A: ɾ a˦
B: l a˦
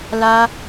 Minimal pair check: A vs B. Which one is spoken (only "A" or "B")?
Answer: B